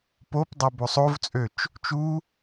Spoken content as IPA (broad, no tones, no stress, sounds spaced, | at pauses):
p o p dˤ ɛ b o sˤ o v t͡sʼ ø t͡ʃ | t͡ʃ u